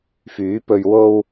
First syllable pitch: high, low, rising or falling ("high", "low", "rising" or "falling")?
rising